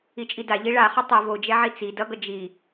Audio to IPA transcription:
i t͡ʃʼ i d a ʎ i ɭ a χ ʌ tˤ o v o d͡ʒ ɛ ʕ i t͡s i d ʌ ɡ ʌ d͡ʒ i

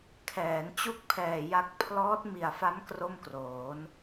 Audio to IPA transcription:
kʰ ɛː˩˦ n t͡ɕ u˥˩ k̚ pʰ ɛː˨˩ j a˦˥ k̚ pʰ l ɔː˦˥ t̚ m i˨˩ a̯ f a˦˥ m k r o˥˩ m k r oː˩˦ n

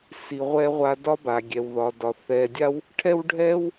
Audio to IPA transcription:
s i˩ ʁʷ ɛ˧ ʁʷ a˧ d ɒ˥ b a˩ ɡʲ ɛ˩ w ð ɒ˩ d ɒ˩ θ ɛ˩ dʲ a˥ w | ʈʰ ɛ˥ w ɖʱ ɛ˥ w

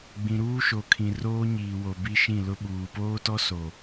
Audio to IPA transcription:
ɡ͡b ĩ˨ ɾ uː˦ ʃ o˨ kʰ ĩ˨ r oː˦ ɲ iː˨ w o˨ b i˦ ʃ ĩ˦˨ l ʊ˦ ɓ uː˨ p oː˦ t ɔ˦ s o˨

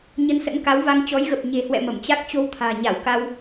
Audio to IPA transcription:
ɲ ə˧ n s ə̰˧˥ n k a˨˦ w v a˧ ŋ t͡ɕ ɔ˨˦ j ɣ ə˨˩ p̚ ɲ e̤˨˩ h w ɛ̰˧˨ m ə˧˩ m t͡ɕ a˦˥ k̚ t͡ɕ o˧ w t̪ʰ a̤ː˨˩ ɲ a˧˩ w k a˧ w

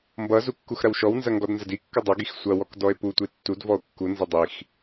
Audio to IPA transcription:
m b ʌ z u kː u x ɾ ɐ w ʃ ɔ w n z ɐ ŋ ɡ ɔ d n z ɐ d i kː ʌ dˤ ʌ ɡ i x sʷ ɐ w ɔ k d ɔ e̯ p u tʷ i tː u d v ɔ o̯ kː u n z ʌ dˤ i x

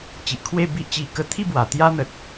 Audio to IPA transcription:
t͡ɕ i˨ ʔ kʰ w e˥˧ b i˦ ʔ t͡ɕ i˧ k ə˧ t̪ʰ i˥˧ b w a˨˩ t̪ j a˦ n̪ ə˨ t̚

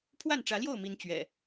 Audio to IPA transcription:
pʰ w a˥˨ n ʈ͡ʂ ä˨˦ l j o˥˨ ʊ̯ m i˨˦ n t͡ɕ ɥ ɛ̰˨˩

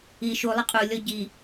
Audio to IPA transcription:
i ʃ u lˠ ə qʼ u lʲ ɔ ɟ i

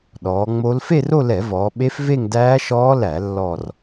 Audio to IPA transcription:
ɗ ɔː˩˧ ŋ͡m o˦˥ l f e˥˧ r o˥˧ l ɛ˧˩˧ v ɔː˩˧ ɓ e˦˥ f v e˥˧ ŋ d æː˦˥ ʃ ɔː˦˥ l æ˧˩˧ lː ɔ˥˧ r

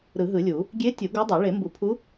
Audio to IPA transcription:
ɾ ɯ˨˩˦ ɦ ɯ˨˩˦ lʲ u˨˩˦ | ɡʲ e˧˥ tʲ u˨˩˦ ɡ o˧˥ dˤ ɛ˨˩˦ ɭ e˨˩˦ m b u˨˩˦ pʰ u˧˥

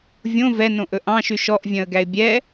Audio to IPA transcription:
vʲ õ v ɛ n õ ʔ ɵ ʔ ɑ̃ ʃ y ʃ ɔ ʔ vʲ œ̃ ə̯ ɡ æ ɪ̯ bʲ ɛ

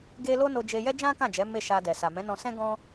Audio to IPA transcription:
ɡ e˦ l o˦ n o˧ d͡ʒ e˧ j ɛ˦ d͡ʒ ã˦ k ã˦˨ d͡ʒ ɛ˨˦ m e˦˨ ʃ a˧ d ɛ˨ s a˨ m ɛ̃˨˦ n ɔ̃˧ s ɛ̃˦ ɡ ɔ̃˦

